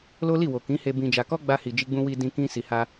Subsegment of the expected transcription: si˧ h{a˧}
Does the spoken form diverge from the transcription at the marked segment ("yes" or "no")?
no